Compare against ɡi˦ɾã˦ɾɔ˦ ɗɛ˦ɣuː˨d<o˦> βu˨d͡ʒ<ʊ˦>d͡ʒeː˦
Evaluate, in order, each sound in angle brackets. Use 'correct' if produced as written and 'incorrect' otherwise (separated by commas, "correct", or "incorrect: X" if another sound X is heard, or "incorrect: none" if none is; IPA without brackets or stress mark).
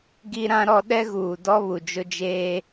incorrect: ɔ˦, correct